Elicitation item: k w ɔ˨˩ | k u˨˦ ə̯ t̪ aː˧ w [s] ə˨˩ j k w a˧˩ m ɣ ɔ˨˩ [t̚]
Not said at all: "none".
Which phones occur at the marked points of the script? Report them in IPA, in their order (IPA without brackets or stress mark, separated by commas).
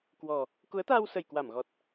s, t̚